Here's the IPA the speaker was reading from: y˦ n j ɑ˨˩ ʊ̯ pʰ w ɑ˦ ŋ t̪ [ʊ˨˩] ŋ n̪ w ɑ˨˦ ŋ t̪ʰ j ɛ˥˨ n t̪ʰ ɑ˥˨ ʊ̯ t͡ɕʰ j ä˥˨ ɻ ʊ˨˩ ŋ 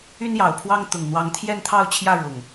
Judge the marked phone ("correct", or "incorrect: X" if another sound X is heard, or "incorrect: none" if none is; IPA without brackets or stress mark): correct